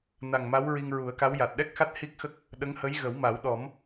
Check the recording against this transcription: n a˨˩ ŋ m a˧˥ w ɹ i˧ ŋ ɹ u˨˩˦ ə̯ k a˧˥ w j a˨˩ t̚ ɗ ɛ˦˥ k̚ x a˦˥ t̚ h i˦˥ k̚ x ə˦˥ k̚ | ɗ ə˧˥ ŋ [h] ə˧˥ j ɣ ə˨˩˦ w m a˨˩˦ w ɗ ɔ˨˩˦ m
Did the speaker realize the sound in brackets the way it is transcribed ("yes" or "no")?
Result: yes